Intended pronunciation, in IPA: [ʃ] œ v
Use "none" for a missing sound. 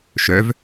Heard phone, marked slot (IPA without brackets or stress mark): ʃ